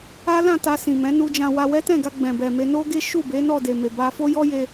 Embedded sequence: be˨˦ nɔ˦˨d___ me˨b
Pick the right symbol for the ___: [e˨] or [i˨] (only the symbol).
e˨